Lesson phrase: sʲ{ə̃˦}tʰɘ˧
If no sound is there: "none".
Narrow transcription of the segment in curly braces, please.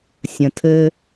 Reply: ə̃˨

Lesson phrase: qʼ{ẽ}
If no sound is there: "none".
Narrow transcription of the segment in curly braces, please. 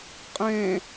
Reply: ẽ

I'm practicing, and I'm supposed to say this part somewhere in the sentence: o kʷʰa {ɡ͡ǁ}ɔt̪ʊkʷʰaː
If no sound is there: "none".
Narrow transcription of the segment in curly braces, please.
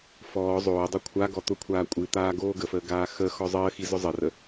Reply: ɡ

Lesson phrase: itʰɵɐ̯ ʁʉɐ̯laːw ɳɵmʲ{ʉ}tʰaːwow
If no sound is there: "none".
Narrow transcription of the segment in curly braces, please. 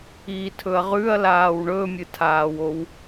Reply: ɨ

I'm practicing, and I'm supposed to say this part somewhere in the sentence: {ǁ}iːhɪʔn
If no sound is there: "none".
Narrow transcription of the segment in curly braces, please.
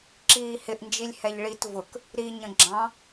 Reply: ǁ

